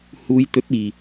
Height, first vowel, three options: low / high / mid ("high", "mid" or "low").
high